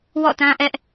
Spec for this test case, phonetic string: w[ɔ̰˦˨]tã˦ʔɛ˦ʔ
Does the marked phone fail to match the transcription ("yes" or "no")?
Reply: no